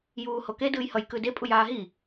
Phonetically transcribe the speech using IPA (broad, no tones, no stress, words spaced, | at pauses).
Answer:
juːhoke dɯːjhʌj kɯde pʼujaːɦi